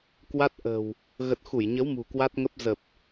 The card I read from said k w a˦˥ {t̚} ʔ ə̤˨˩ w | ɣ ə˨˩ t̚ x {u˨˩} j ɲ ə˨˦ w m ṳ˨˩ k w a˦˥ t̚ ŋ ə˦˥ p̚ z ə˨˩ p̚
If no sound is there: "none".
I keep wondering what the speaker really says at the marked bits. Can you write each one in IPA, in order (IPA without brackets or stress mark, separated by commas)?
t̚, u˧˩